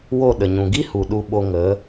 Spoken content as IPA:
w o˦˨ ɗ ə˨ ɲ ũ˨ ɡ i˦ h u˨ ɗ u˧ ɓ o˧ ŋ ə˨˦

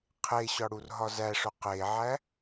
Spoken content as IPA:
qʰ e ɕ ɒ ɽ u r ɦ ɒ z æ ʂ o q e ʕ æ

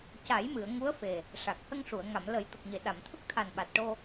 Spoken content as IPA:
c a˨˩˦ j m ɨ˨˩˨ ə̯ ŋ u˧˥ ə̯ f e˨˩ | ʂ a˨˩ k̚ h ə˧ ŋ ʂ u˨˩˨ ə̯ ŋ a˨˩˨ m l ə˨˩˦ j t̪ ə˨˩ k̚ ɲ e˨˩˨ ɗ a˨˩˨ m t̪ʰ ə˦˥ k̚ t̪ʰ a˨˩ n ɓ a˨˩ t̚ ʈ o˧

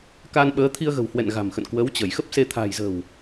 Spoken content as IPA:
k a˧ n ɓ əː˨˦ t̪ʰ i˧ ə̯ ɣ ə̤˨˩ w h w ɛ̰˧˨ n ɣ a̤˨˩ m x ə̰˧˨ n k w ə˨˦ w t͡ɕ ə˧˩ j x ə˦˥ p̚ s e˧ t̪ʰ a̤˨˩ j z ə̤˨˩ w

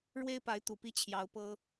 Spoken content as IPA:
ɻ w e˦ ɪ̯ p a˨˦ ɪ̯ t̪ u˨˩ p i˦ t͡ɕʰ j ɑ˨˦ ʊ̯ p ɤ˦

